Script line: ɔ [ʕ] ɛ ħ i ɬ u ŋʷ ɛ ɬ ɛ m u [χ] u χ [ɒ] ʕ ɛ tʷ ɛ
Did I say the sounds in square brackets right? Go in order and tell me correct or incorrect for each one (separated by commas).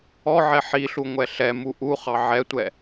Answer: correct, incorrect, incorrect